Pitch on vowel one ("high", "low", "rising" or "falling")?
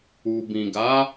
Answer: low